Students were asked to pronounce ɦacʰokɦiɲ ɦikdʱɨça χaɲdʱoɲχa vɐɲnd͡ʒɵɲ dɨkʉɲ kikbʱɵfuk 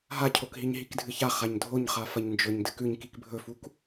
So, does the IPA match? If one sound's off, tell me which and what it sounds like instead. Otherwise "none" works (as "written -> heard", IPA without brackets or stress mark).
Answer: v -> f